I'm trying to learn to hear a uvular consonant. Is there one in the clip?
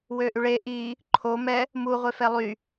yes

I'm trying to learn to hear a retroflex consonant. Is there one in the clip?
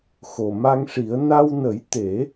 yes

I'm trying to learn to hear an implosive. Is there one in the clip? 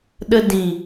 yes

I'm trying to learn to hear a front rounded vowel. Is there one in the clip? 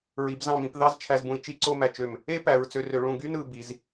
yes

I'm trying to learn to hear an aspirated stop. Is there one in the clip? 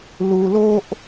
no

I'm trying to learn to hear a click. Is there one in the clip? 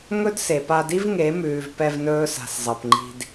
yes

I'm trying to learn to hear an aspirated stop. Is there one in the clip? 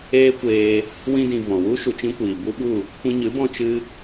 no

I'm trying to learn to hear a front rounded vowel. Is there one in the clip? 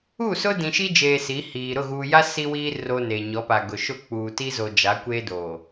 no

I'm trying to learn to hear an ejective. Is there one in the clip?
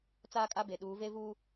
yes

